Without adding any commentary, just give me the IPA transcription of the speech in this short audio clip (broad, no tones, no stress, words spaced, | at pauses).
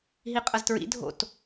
ɦiqʼɐztɹḭ dʱo̰t